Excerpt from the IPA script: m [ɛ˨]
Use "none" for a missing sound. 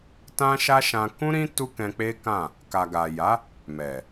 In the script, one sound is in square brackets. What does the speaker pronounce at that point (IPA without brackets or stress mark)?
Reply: ɛ˨